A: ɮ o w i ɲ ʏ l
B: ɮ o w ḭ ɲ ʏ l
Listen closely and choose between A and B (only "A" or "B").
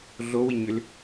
A